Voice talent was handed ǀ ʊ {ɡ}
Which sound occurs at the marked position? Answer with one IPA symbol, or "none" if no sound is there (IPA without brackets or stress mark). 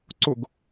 ɡ